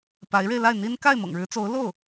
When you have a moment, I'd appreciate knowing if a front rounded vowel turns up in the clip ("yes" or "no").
no